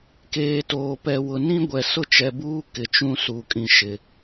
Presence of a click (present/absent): absent